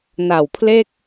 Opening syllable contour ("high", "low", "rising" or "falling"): low